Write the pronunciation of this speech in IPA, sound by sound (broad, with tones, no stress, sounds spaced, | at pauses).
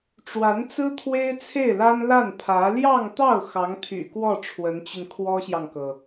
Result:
ʈ͡ʂ w a˧˥ n t͡s ɹ̩˥ t̪ʰ w e˥ ɪ̯ t͡sʰ e˥˩ ɪ̯ l a˥ n l a˥˩ n pʰ ä˧˥ l j ɑ˥˧ ŋ t̪ ɑ˥˩ ʊ̯ x ɑ˧˥ ŋ t̪ʰ y̰˨˩ k w ɔ˥˩ ʈ͡ʂʰ w ə˧˥ n t͡ɕ y˧ n kʰ w ɔ˥ ɕ j ɑ˨ ŋ k ɤ˩